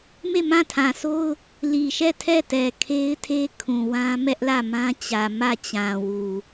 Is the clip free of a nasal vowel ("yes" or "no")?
no